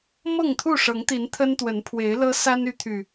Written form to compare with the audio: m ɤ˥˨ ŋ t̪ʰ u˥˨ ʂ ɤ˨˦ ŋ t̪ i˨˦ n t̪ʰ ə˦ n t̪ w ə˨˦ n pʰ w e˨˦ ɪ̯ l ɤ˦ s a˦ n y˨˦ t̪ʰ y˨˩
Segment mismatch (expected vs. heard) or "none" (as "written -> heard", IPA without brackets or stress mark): none